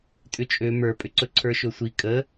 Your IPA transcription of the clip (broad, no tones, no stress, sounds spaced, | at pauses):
tʼ ʏ t͡ʃʼ ø m ə˞ pʼ ʏ ǀ ɵ ǀʰ ə˞ ʃ ɵ sʷ i kʼ ə